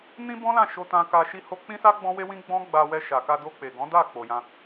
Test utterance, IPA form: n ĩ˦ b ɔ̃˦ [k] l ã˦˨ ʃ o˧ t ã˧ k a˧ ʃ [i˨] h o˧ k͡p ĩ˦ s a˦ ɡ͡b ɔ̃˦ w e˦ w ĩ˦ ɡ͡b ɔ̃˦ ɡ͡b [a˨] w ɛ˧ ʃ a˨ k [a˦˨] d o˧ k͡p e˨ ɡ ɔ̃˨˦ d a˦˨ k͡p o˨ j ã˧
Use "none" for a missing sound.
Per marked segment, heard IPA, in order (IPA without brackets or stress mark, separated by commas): none, i˧, a˧, a˧